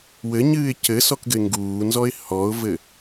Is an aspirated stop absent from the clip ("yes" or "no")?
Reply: yes